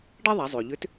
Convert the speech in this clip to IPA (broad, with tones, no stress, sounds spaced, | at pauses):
ɖ ɛ˥ ðˤ a˩˧ zˤ ø˩ ʎ ʏ˧˥ t